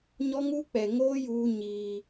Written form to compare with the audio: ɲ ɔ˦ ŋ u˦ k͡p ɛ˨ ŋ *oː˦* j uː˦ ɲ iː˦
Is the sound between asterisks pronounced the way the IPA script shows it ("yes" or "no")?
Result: yes